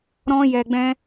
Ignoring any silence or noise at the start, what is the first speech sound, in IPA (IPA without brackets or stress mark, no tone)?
ɾ